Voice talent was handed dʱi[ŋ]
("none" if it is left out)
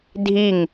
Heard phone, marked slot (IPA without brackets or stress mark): ŋ